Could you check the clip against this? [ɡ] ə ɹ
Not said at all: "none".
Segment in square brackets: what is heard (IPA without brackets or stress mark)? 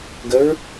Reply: ɡ